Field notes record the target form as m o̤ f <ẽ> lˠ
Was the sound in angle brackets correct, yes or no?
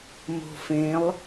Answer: yes